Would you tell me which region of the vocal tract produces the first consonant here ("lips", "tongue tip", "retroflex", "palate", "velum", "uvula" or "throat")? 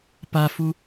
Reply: lips